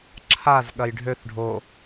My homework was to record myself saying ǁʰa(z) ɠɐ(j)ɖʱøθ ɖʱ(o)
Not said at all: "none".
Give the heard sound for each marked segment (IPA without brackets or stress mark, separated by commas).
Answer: z, j, o